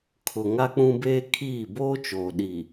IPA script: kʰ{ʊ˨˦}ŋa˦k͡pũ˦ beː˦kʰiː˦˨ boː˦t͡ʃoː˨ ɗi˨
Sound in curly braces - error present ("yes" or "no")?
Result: yes